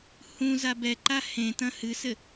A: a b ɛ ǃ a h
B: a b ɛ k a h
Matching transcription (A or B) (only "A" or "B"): A